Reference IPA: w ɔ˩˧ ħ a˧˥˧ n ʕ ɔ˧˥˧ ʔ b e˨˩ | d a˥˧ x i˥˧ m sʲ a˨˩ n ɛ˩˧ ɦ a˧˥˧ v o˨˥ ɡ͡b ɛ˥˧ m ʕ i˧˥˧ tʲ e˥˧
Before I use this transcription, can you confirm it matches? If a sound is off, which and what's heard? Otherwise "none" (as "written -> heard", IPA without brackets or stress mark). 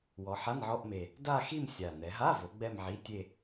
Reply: b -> m